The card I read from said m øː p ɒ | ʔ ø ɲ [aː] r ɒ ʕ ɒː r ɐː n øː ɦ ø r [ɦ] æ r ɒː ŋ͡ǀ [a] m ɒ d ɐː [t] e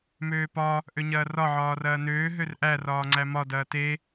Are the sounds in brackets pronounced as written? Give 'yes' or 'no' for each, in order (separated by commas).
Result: no, no, no, yes